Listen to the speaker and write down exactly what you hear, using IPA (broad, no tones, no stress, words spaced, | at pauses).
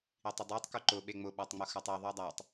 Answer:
itˤʊdˤutˤ kuǃʊ ɓeŋ͡mʊ ɓatˤŋ͡mʊxatˤe ðˤudˤatˤ